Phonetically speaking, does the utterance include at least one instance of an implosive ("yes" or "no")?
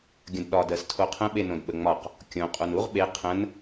yes